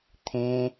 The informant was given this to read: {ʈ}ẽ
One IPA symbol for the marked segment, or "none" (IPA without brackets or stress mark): t̪ʰ